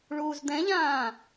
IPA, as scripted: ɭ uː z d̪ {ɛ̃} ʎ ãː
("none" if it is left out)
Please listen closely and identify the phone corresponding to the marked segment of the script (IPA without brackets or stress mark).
ɛ̃